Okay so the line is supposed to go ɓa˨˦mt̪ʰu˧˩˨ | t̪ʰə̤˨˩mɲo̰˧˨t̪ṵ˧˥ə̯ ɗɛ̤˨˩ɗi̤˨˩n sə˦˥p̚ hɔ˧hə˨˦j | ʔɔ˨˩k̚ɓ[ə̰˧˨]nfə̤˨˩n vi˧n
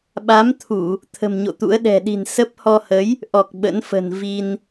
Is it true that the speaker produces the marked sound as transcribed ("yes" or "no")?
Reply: no